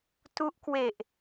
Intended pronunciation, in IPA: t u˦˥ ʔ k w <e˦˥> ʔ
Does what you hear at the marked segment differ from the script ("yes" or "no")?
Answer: yes